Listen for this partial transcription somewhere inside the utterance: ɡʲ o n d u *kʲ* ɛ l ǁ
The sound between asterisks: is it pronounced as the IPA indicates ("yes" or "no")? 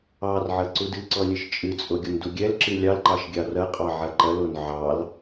no